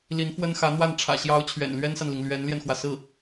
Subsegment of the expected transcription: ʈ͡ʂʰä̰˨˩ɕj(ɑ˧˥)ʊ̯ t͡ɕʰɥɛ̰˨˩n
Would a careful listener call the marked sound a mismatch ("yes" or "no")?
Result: no